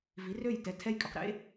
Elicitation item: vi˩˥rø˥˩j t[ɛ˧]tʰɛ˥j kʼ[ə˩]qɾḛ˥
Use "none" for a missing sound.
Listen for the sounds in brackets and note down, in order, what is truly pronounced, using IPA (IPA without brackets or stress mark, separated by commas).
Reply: ɛ˧, ʏ˩